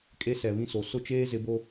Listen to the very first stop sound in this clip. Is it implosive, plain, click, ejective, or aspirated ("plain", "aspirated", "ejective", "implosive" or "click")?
ejective